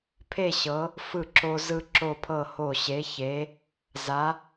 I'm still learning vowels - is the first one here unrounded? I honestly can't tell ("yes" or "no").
yes